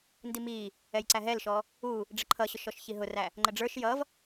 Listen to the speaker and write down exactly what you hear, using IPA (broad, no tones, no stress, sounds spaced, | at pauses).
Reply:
n d i m i | ɛ j ǀ æ ɦ ɛ l ʃ ɔ | u | ɖ͡ʐ ə ǃʰ ʌ ɕ ʊ ʃ ɔ ʃ ç i ɦ ʊ r æ | ŋ͡ǃ ə ɖ͡ʐ ə˞ ʃ j ʌ v